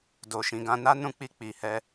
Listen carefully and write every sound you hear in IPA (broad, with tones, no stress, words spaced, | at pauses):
do˨ʃĩ˨ɡã˧ na˦nũ˧k͡pi˧ k͡pi˨hɛ˧